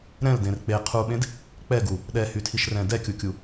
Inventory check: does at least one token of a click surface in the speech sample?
no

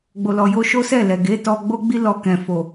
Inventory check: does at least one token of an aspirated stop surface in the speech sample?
no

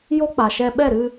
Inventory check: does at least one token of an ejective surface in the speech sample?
no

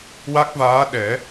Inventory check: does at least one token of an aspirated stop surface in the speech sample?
no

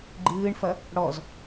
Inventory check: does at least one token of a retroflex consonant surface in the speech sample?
yes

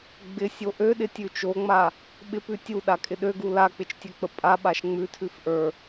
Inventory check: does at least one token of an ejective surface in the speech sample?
yes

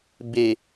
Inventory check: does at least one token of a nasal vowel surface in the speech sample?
no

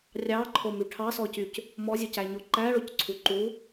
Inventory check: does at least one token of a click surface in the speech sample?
yes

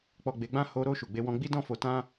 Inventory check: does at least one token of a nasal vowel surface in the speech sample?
yes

